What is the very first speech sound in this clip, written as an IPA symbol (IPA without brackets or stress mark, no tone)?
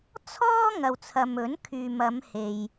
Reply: t͡sʰ